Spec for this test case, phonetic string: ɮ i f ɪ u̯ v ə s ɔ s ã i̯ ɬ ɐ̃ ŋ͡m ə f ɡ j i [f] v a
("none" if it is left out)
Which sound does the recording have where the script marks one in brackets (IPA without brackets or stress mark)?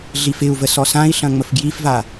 f